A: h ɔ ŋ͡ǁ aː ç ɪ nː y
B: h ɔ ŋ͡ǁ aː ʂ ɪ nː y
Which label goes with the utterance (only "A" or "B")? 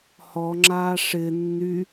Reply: B